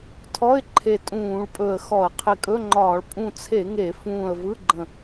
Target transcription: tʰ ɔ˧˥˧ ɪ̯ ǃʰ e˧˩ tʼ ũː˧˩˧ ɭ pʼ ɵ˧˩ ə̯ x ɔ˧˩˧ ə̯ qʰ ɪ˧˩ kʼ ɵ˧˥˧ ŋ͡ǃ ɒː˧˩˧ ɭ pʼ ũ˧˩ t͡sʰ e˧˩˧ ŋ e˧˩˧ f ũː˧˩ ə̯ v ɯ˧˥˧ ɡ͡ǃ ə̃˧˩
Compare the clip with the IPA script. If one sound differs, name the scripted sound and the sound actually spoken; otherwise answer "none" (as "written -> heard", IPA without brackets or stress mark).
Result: none